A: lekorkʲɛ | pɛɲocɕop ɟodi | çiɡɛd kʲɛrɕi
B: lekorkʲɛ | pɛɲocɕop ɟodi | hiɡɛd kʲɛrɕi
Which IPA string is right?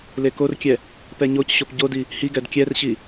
B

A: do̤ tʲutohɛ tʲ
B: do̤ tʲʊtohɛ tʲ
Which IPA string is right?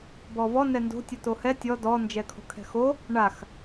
B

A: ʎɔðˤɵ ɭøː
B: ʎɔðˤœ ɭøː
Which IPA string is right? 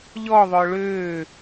B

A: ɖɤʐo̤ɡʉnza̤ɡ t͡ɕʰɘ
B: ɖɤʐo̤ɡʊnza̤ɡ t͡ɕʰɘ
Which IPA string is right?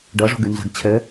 A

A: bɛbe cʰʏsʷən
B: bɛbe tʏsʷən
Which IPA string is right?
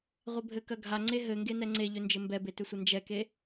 B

